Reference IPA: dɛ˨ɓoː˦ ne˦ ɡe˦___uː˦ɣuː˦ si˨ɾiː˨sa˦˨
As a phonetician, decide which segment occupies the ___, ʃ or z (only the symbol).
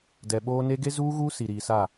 z